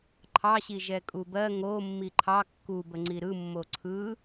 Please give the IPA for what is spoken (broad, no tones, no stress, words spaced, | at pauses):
ǃʰɑɕi ʒɛkʼubɜ ŋo mːiǃʰɑ kːubə ŋ͡ǀiɾɯ mːoǀʰɯ